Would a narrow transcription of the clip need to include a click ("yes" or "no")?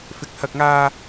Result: no